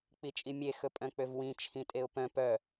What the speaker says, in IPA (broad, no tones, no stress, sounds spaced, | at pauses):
k͡p i t͡ʃʼ i mʲ e x ɵ pʼ œ̃ k͡p ø v w ĩ t͡ʃʰ ĩ tʼ e ʊ̯ p œ̃ p œ